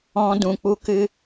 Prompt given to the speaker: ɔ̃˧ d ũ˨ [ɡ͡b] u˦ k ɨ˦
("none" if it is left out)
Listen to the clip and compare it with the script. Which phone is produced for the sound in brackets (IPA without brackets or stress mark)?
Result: k͡p